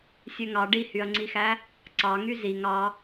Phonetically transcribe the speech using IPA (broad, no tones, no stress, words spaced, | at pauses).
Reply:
sʲøŋɑ ɖihyɐ̯ŋ͡ǀixæ | ǀɑŋy ziŋ ɑ